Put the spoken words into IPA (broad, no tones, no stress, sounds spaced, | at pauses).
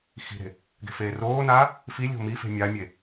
x i̤ ɾ e̤ | ɡ e̤ f eː r oː n aː | f i lʲ o̤ m i f e̤ mʲ a mʲ e